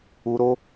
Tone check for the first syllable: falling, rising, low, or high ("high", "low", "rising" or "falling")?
high